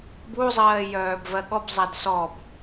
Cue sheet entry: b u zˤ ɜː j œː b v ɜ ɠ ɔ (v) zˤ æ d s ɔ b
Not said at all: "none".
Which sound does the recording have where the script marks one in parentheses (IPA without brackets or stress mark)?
b